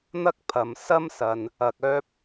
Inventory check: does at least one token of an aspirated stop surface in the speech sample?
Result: yes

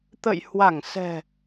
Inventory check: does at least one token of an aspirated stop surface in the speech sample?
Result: no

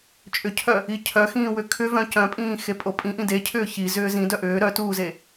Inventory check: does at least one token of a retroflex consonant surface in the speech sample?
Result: no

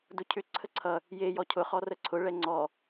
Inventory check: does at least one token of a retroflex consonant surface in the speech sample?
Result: yes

